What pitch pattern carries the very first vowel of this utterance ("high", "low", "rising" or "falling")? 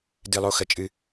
high